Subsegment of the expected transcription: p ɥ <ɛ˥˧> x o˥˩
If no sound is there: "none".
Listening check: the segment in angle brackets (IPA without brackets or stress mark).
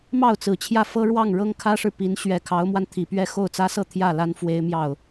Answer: ɛ˥˧